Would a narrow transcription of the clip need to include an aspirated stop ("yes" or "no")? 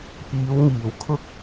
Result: yes